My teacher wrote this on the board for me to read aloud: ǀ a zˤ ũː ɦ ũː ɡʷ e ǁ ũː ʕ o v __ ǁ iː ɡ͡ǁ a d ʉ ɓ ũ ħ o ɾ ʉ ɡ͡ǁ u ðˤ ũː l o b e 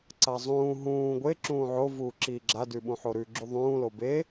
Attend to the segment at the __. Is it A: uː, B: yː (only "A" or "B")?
A